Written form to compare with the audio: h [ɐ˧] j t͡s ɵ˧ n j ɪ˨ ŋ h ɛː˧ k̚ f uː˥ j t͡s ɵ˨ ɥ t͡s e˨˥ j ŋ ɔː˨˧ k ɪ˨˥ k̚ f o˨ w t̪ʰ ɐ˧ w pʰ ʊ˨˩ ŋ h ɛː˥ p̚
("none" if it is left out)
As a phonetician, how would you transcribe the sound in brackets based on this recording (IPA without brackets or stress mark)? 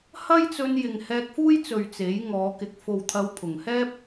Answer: ɐ˥